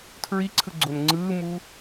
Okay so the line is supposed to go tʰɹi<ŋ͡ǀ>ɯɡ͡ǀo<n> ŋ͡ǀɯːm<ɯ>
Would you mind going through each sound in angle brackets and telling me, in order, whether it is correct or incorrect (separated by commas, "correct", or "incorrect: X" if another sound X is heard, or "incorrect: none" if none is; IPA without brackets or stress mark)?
incorrect: ǀʰ, correct, incorrect: u